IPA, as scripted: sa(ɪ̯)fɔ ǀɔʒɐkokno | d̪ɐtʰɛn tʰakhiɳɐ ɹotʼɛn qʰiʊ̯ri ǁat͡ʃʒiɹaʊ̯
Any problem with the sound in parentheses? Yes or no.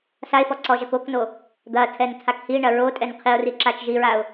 no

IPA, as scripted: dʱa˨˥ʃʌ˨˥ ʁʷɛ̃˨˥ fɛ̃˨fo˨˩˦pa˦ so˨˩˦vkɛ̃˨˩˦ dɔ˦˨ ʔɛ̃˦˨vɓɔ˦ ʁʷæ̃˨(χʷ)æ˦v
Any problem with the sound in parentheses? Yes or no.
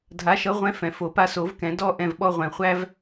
no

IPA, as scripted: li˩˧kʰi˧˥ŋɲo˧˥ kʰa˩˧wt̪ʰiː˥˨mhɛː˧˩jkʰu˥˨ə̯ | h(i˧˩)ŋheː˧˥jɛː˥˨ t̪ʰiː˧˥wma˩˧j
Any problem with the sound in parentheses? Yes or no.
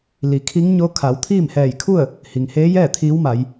yes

